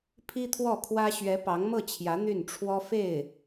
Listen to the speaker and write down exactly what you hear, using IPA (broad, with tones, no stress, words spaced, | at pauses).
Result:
pʰi˥t̪ʰwɔ˥˩kʰwä˥ ɕɥɛ˧˥pɑ˧˥ŋmɤ˥˩t͡ɕʰjä˧˥ n̪y˥˩nʈ͡ʂʰwɔ˥fe˥˩ɪ̯